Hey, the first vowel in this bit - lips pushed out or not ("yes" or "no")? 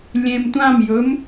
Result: no